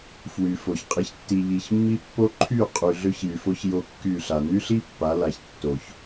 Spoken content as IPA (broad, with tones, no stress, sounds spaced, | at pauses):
f w y˨ f o˨ ç qʼ i˨ ç tː i˨ ʎ i˨ ç mː i˦ pː o˦ ǃʰ y˦˨ qʼ y˨ ɮ ø˦ ç j y˨ f o˦ ç j o˦ kː y˦˨ ɬ a˨ n y˦ ɬ i˦ pː a˨˦ l a˨ ç tː o˨ ç